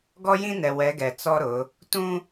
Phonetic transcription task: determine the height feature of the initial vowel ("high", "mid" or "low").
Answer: mid